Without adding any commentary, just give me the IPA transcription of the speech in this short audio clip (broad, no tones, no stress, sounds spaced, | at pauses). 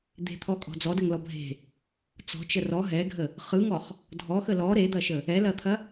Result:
d̪ e̤ t̪ʰ ɔ kʼ ɔ̤ d͡z ɔ d ə ŋ l ɔ bʱ e̤ | t͡s ɔ̤ t͡ʃ ə r ɔ ɦ ɛ ɡʱ ə | χ ɯ ŋ ɔ χ | dʱ ɔ x ə l ɔ ɾ e d̪ ɐ ʃ ə | ɛ l ɐ t̪ʰ ɐ